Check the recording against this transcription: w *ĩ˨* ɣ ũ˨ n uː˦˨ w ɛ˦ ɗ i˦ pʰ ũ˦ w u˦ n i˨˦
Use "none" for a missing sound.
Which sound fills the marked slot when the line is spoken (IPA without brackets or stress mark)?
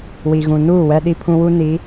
i˨